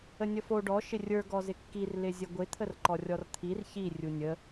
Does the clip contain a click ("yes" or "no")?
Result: yes